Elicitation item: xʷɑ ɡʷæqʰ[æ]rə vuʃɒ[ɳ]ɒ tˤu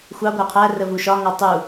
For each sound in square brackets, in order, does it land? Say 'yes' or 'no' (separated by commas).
yes, no